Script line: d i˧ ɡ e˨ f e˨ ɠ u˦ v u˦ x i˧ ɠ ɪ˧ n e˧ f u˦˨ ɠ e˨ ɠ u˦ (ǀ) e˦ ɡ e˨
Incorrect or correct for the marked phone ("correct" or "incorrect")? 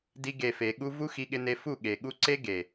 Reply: correct